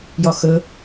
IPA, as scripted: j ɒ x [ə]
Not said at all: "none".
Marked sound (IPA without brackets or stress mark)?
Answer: ə